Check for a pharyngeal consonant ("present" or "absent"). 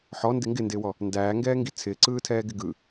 present